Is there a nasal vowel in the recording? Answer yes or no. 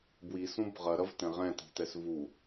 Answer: yes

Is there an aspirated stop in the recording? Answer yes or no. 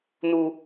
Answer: no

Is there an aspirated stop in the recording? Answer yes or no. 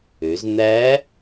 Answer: no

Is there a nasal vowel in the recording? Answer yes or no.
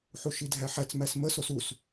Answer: no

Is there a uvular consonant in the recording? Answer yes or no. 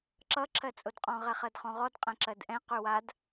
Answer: yes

